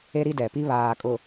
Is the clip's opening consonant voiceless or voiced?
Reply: voiced